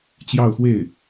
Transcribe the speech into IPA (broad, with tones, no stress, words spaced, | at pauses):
t͡ɕjɑ˥˧ʊ̯xwe˥˩ɪ̯